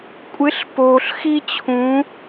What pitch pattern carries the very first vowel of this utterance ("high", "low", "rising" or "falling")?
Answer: rising